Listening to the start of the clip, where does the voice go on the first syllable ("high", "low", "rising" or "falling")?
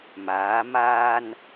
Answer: rising